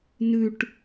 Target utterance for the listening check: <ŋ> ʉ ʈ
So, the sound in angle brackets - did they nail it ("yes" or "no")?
no